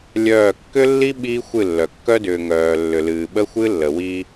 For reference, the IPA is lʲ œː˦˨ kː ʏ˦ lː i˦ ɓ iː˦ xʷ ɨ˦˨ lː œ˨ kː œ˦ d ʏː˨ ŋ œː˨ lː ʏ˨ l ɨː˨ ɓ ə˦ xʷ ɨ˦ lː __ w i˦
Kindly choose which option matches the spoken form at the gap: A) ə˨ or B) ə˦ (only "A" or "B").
A